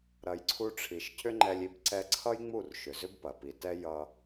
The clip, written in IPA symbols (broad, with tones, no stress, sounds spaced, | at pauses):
ɾ ɐ˧ j ǀʰ u˦ ʈ͡ʂʰ i˧ ʃ cʰ ʏ˦ ŋ͡ǃ ɛ˧ lʲ i˧ b ǀ ɛ˧ ǀʰ ʌ˦ j ŋ͡m u˦˨ r ʃ ʏ˨ z ʏ˦ b p ɐ˨ p i˨ t ɛ˦ j ʌ˧